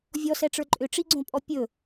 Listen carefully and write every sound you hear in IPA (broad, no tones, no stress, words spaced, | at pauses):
vʲɔsɛʈ͡ʂə˞ ǃʼʏʈ͡ʂiɡ͡ǀõpʼɔ pʲɵ